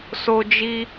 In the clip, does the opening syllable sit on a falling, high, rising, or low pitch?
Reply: high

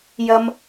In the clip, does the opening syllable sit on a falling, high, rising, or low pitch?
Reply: low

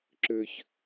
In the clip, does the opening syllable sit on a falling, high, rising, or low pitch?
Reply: low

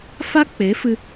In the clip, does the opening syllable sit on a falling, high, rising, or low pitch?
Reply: high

